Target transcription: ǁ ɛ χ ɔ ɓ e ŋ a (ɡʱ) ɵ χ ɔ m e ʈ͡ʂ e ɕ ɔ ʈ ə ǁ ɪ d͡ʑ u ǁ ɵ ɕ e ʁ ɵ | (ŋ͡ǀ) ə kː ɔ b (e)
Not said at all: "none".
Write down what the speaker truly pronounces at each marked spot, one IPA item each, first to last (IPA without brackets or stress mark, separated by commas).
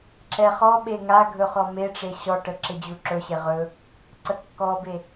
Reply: ɡʱ, ǀ, e